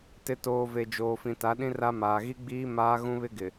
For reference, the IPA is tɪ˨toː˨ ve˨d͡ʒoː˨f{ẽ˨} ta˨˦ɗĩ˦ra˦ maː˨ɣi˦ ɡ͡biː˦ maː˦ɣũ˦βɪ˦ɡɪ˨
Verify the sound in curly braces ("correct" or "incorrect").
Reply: incorrect